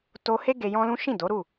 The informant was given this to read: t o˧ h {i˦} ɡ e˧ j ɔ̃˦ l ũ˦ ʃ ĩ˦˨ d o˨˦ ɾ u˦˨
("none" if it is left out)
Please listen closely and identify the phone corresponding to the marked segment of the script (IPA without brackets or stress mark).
e˦